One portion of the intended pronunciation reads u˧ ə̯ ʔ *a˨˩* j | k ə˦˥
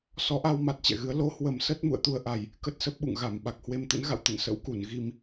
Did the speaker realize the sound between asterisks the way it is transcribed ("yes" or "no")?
yes